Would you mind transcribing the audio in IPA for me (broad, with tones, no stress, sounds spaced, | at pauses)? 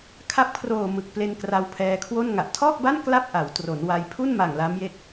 kʰ a˦˥ p̚ kʰ r oː˨˩ m ɯ˨˩ k̚ p l e˧ n k r a˧ w pʰ ɛː˧ kʰ w o˥˩ n ŋ a˨˩ ʔ tʰ ɔː˥˩ k̚ b a˥˩ n k l a˥˩ p̚ ʔ a˩˦ w t r o˩˦ n w a˧ j pʰ u˥˩ n m a˨˩ ŋ l a˦˥ m j e˦˥ k̚